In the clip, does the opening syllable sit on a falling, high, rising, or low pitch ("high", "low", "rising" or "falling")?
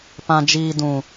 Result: low